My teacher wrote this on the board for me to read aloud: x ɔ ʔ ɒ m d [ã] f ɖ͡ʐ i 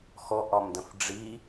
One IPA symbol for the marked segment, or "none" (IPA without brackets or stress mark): ə̃